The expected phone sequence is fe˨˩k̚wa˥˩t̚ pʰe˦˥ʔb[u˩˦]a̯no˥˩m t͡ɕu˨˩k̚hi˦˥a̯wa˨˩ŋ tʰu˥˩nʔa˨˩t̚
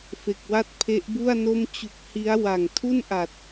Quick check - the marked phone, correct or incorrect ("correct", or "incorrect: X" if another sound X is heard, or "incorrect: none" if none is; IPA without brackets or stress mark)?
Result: incorrect: u˥˩